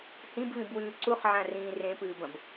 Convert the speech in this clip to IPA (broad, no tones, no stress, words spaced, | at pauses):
hĩbvĩbwʉː ǀuχʕãrĩː rẽpɨːbɐ̃b